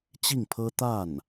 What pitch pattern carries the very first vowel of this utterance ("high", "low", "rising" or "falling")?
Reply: falling